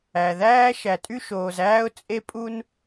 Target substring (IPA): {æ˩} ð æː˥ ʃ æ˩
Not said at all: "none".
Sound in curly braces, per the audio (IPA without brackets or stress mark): æ˩